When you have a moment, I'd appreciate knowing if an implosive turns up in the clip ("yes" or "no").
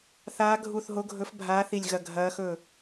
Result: no